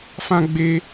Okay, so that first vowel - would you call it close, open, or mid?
open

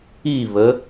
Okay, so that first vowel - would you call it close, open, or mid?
close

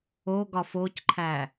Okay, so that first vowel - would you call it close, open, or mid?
mid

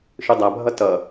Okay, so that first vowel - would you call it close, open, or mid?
close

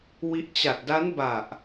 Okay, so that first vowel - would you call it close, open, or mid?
close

